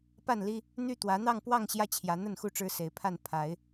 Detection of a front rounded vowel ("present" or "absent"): present